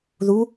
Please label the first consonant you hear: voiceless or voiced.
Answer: voiced